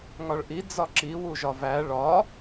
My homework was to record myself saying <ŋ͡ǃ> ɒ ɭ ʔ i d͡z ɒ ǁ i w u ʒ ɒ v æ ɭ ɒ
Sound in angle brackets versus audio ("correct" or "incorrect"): incorrect